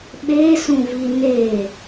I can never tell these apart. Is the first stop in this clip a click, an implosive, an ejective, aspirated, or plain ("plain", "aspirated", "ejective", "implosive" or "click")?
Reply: implosive